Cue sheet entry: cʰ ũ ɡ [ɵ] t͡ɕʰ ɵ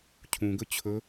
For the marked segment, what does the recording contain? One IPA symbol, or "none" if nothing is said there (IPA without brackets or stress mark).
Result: ɵ